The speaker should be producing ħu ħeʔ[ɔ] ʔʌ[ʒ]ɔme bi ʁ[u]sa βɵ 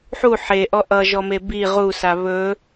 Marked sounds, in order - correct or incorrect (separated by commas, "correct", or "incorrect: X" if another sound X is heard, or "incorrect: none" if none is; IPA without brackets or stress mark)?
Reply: correct, correct, correct